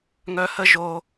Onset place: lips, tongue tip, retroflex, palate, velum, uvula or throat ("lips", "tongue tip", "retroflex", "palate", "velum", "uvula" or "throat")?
velum